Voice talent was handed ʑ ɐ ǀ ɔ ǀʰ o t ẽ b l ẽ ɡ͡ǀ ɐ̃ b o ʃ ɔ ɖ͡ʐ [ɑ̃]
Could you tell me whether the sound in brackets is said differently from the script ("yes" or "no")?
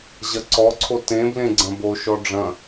yes